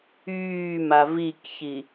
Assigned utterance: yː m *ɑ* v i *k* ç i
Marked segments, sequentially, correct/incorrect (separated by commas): incorrect, correct